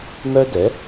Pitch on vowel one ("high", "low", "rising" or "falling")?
high